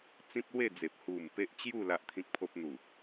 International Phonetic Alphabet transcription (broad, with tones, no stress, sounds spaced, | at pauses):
t͡s ĩ˦ p̚ l w e˥˧ d͡z e˨ p̚ h u˨˩ m p e˦ ʔ t͡ɕ j u˥˧ l a˦ ʔ t̪ʰ ĩ˦ k̚ pʰ o˦ p̚ n̪ u˨˩